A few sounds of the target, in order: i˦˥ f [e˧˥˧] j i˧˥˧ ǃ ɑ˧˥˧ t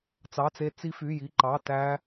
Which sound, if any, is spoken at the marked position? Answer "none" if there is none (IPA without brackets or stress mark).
y˧˥˧